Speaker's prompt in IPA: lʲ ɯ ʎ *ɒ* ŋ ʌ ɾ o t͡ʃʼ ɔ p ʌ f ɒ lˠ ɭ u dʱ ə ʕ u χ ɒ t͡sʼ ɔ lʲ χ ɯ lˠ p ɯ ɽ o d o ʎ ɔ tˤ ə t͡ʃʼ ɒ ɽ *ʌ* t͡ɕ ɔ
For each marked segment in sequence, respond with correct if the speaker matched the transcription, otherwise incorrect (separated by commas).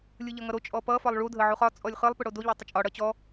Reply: incorrect, correct